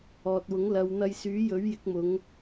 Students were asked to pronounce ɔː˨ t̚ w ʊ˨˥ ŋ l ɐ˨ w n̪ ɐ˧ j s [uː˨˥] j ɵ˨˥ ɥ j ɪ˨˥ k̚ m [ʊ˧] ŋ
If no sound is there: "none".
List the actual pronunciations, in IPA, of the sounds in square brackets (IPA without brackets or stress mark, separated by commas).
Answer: yː˨˥, ʊ˨˧